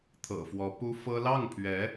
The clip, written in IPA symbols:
t̪ʰ ɤ̰˨˩ f w ɔ˧˥ p u˥ f ɤ˥ l ɑ˥˩ ŋ pʰ ɥ ɛ˧˥

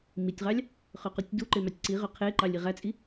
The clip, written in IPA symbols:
m i tʲ ʁ ɑ lʲ | χ ø q u tʲ d u ǃ e m ɑ tʲ ǀ i ʁ ø qʰ e ǃ ɑ lʲ i ʁ æ t͡sʼ i

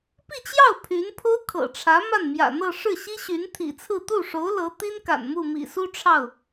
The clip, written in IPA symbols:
p i˥˧ t͡ɕ j ɑ˥˩ ʊ̯ pʰ y˧˥ n pʰ o˥ ʊ̯ kʰ ɤ̰˨˩ ʈ͡ʂʰ ä˧˥ m a˥˩ n m j ä̰˨˩ n̪ ɤ˥˧ ʂ ɻ̩˥˩ ɕ i˥ ɕ y˧˥ n t̪ʰ ḭ˨˩ t͡sʰ ɹ̩˥˧ t̪ u˥˩ ʂ o˧˥ ʊ̯ l ɤ˧˥ t̪ i˥ n k a̰˨˩ n m u˥˩ m ḭ˨˩ s u˥ ʈ͡ʂʰ ɑ˥˩ ʊ̯

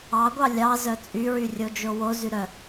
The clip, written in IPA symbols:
ɑ ɡʷ ɑ lʲ ɑ z œ t͡sʼ y ɹ y rʲ o d͡ʒ o w o z y ɾ œ

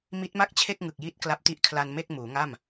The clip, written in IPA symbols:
m i˦˥ t̚ m a˥˩ k̚ t͡ɕʰ e˥˩ k̚ ŋ ɯ˨˩ k̚ j i˦˥ t̚ k l a˦˥ p̚ t i˦˥ ʔ kʰ l a˧ n m e˥˩ k̚ m uː˩˦ ŋ a˥˩ m

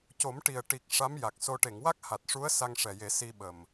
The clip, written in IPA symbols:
c o˨˩˦ m ʈ i˨˩ ə̯ ʈ i˨˩ k̚ ʂ a˧˥ m j a˨˩ k̚ s o˧ ʈ e˨˩˨ ŋ w a˦˥ k̚ h a˨˩ t̚ ʂ u˧˥ ə̯ s a˧ ŋ ʂ ɛ˨˩ j e˨˩˦ s i˧ ɓ ə˨˩ m

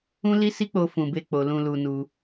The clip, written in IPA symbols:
ũ˦ l i˦ s i˦ k͡p o˧ f ũ˨ b e˧ k͡p o˨ l ũ˧ l u˧ n u˧

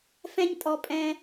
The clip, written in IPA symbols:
f ɛ̃˦ ɲ tʼ ɔ˧ pʼ ɛ̃˧

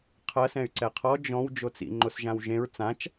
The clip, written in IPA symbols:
qʰ ɐ s ɛ̃ y̯ ǀ ɛ qʰ ɔ d͡ʒ ɔ̃ w d͡ʒ o t͡s ḭ ŋ͡ǃ o s ʒ ã w ʒ ẽ ɹ t͡s ã t͡ʃ

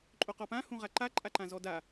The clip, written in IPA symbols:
ǃʼ o q ɔ p ã h ũ ʁ a ǃ a ǃʼ a ǃ ã z ɔ d a

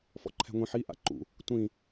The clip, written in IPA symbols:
f ɔ̰ ǃʰ ɛ̤ ŋʷ ĩ ħ i ʔ a̰ ǃ ṵ | tʷ ĩ

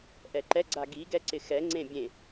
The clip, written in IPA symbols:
ʔ ɛ ǃ ɛ ɡ͡ǀ a ɡ i ɡ ɛ ǀ ɪ x ɛ ŋ͡ǀ ẽ bʲ ẽ

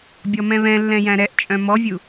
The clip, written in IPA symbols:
bʲ ɔ m ɛ̃ β ɛ̃ lː ɛ̃ j æ̃ ɾ ɛ ʔ t͡ʃʼ œ̃ m ɔ vʲ u

